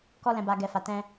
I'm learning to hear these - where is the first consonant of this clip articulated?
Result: velum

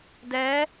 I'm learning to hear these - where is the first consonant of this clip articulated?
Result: tongue tip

